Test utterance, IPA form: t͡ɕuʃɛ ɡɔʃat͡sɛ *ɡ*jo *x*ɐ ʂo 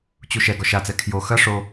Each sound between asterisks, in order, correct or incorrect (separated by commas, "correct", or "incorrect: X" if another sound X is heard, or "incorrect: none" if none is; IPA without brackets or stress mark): incorrect: kʰ, correct